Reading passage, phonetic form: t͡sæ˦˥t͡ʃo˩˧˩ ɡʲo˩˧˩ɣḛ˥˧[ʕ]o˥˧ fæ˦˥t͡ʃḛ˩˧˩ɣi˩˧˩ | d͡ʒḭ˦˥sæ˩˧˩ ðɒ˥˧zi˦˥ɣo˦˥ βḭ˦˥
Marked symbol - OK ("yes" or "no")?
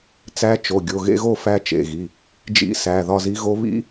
no